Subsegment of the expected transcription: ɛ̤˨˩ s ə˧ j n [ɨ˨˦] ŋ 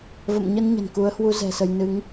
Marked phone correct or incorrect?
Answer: correct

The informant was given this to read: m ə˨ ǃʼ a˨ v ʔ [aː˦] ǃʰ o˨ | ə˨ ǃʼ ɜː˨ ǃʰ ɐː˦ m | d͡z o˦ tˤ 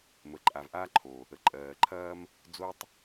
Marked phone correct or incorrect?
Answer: correct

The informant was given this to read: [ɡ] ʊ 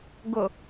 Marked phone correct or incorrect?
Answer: correct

